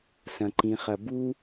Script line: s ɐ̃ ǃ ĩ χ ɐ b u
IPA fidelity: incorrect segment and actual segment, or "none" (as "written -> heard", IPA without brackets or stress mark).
none